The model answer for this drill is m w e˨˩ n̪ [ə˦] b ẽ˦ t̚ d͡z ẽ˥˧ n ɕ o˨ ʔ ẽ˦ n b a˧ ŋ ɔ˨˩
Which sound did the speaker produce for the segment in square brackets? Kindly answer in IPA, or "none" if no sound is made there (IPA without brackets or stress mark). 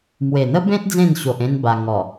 ə˦